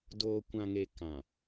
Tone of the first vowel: low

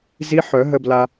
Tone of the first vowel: rising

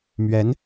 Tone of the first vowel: rising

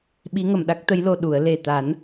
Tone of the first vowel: rising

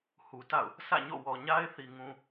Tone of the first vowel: low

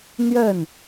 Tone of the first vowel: falling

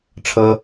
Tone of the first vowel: high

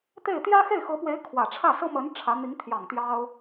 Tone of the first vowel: falling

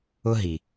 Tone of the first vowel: high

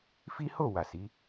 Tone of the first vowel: high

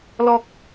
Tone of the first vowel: low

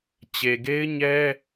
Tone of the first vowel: low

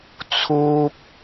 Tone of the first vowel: high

